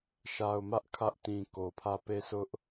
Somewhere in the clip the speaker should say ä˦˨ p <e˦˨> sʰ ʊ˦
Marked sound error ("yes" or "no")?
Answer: no